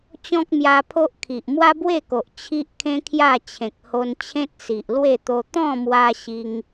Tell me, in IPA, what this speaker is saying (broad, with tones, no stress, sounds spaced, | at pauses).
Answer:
t͡ɕ ɔ̃˦ k̚ m j a˧ pʰ o˦ ʔ kʰ i˨ ʔ m w a˦ b w e˥˧ k o˨ ʔ t͡ɕʰ i˦ ʔ kʰ ẽ˦ kʰ j a˥˧ t͡ɕʰ ẽ˨ k̚ h o˧ n t͡ɕʰ ẽ˦ t̚ s i˨ ʔ l w e˥˧ t̪ o˧ t̪ ɔ̃˥˧ m w a˧ ɕ i˦ ŋ